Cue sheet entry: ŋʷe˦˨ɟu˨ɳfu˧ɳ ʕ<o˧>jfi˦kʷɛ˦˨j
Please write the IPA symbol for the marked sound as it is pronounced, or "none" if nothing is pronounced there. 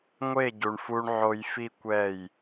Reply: o˧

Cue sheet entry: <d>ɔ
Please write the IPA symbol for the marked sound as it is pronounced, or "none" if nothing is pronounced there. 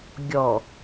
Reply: ɡʲ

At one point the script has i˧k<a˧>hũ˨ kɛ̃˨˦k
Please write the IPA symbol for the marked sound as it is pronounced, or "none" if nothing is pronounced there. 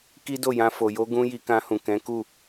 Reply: ã˧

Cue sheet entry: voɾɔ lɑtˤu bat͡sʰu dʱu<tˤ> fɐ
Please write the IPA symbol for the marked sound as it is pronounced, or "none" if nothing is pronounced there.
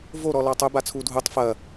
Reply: tˤ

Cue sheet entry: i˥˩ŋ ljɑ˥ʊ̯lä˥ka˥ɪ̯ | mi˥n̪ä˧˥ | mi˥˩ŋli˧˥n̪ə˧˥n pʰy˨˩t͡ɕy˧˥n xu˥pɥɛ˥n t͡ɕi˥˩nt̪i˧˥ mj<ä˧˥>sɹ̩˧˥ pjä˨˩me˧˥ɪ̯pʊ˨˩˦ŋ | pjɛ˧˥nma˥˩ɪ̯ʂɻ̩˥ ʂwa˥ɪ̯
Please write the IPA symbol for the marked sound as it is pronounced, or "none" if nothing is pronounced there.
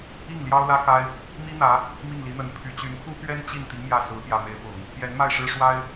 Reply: ä˥˩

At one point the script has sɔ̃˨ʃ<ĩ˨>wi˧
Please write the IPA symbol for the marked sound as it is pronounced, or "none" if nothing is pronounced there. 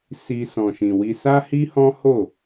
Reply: ĩ˨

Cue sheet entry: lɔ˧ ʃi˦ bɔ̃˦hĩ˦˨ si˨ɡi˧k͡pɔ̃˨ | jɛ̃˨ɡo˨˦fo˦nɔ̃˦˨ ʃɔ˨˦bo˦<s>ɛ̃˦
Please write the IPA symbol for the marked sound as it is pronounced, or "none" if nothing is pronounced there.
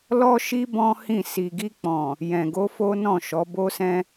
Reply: s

